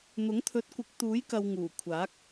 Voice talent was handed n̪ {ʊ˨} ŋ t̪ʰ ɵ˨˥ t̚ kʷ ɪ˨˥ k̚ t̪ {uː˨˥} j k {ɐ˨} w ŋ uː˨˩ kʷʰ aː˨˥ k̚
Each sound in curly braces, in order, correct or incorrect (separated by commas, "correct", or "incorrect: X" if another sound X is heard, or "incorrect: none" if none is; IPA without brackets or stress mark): incorrect: ʊ˨˥, correct, correct